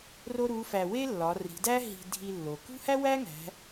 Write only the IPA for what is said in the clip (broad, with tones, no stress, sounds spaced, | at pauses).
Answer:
r o˥ ɾ u˧˥ f æ˧ w e˥ lː ɒ˩˧ r i̤˩˧ d æ˥ ɦ i̤˧ dʱ i˧ lː o˩ k ṳ˥ h æ˥ w æ˥ ŋ æ̤˩˧